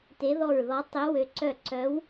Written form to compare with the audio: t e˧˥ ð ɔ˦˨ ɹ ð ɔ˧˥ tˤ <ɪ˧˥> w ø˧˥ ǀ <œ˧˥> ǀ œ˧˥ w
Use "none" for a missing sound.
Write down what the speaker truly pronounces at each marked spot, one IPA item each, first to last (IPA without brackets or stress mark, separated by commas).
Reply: ɪ˧˥, œ˦˨